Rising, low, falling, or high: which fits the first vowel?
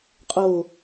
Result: low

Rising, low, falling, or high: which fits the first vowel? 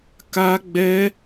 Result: high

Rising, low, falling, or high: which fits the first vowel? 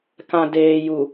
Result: low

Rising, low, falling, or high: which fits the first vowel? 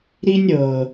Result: high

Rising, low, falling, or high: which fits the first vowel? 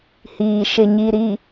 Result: low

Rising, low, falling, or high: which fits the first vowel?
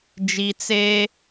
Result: low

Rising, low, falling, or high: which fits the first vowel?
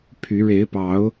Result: rising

